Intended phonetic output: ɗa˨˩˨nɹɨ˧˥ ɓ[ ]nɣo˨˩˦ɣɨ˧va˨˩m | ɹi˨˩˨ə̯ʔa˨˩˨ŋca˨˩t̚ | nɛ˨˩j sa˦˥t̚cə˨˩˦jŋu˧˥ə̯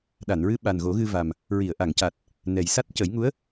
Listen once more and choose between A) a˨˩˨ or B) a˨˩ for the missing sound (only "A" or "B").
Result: B